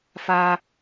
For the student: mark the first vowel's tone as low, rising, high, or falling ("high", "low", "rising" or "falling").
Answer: high